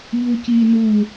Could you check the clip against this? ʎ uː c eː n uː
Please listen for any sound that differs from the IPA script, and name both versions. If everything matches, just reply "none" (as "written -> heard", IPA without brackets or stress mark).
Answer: eː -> iː